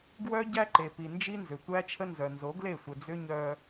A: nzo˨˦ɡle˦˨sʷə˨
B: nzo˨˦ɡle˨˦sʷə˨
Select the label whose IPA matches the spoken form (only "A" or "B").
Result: A